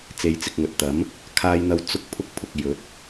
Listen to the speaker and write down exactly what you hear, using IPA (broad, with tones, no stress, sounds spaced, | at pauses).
t͡s e˨˧ j t͡s ɪ˨ k̚ ŋ ɵ˨ t̚ t̪ ɐ˨˥ m | kʰ aː˥ j n̪ ɐ˥ w t͡s ʊ˥ k̚ pʰ ʊ˥ k̚ pʰ ʊ˨ k̚ j ɵ˨˥ t̚